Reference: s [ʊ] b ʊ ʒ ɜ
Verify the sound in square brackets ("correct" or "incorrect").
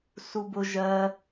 incorrect